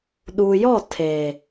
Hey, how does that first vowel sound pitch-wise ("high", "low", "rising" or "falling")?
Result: low